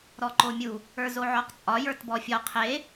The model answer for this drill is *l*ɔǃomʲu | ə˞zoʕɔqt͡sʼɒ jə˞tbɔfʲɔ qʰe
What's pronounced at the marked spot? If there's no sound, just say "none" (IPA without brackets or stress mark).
ɾ